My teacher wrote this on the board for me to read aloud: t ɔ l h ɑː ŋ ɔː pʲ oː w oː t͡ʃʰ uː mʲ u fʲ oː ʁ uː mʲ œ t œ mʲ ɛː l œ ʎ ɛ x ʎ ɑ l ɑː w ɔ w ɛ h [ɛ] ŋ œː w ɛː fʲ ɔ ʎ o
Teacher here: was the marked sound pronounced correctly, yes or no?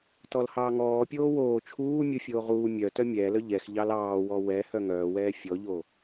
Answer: no